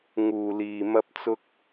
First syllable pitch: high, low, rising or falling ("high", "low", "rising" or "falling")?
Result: low